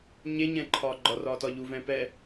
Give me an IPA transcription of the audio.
ɲeɲɛ̃ǃʰɒː ɡ͡ǃɒrɒːtɒ ʎuvɛ̃ː pɛ

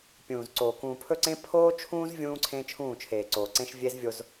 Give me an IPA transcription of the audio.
pʲũː˨zǀoː˨ kũː˨pʰɵ˦˨ǀẽ˦ pʰoː˦t͡ʃʰũː˦z vʲũː˦ǀʰẽ˦ t͡ʃʰũː˦˨t͡ʃʰeː˨ǀoː˨ǀẽ˦ʃ vʲe˦zvʲo˦z

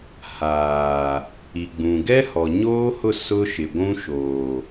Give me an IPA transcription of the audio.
haː˨ | i˨ɡ͡bũ˨ ɡɛ˦hɔ˨ɲoː˦hʊ˦˨ sʊ˦ʃɪ˨ɡʷũ˦ʃoː˨

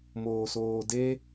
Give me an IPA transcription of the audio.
moːsoːde

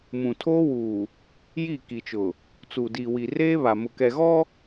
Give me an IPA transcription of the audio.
mũ˨tʰoː˦wuː˨ | ji˦˨ ki˨t͡ʃʊ˨ | t͡su˨diː˨wi˨ reː˦βa˨ mʊ˨kɛ˨ɣɔ˦

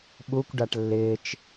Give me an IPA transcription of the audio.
ɓukʷɖaʈ lːɪːt͡ʃ

